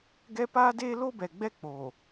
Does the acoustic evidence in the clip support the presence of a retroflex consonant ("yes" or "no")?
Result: no